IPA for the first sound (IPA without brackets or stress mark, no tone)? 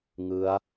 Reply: ŋ